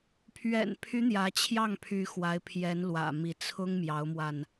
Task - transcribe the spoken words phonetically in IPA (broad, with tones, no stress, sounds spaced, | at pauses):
pʰ ɥ ɛ̰˨˩ n pʰ y˧˥ n̪ j ä˧˥ t͡ɕʰ j ɑ˥˩ ŋ pʰ y˧˥ x w a˧˥ ɪ̯ pʰ j ɛ˧˥ n l w ä̰˨˩ m i˧˥ t͡sʰ ʊ˥ ŋ m j ɑ˧˥ ʊ̯ m w a˧ n